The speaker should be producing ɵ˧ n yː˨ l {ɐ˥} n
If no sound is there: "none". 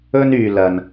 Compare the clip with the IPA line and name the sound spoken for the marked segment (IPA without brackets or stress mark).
ɐ˧